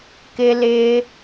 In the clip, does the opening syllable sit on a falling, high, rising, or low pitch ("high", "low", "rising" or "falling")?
high